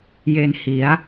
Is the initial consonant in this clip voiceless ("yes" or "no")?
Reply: no